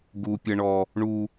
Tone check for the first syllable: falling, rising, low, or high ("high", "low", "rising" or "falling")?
high